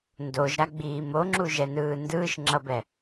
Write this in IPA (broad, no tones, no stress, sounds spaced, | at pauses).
n d o ʒ ɾ a ɡ͡b iː m o ŋ͡ǁ u ʒ ɛ n ɯː n d ɯː ʃ ŋ͡ǁ ʌ b ɛ